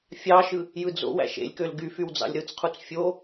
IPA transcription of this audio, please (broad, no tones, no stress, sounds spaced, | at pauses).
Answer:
fʲ ɑ ʃ ɯ | j ɯ d͡z o̰ w æ̰ ʃ ḛ lʲ k ø l ɡ y f y w d͡z ɑ̰ lʲ ɾ ɯ t͡s qʰ u t͡s fʲ o